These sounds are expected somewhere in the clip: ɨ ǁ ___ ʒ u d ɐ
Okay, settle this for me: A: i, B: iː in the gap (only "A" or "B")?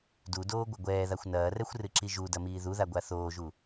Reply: A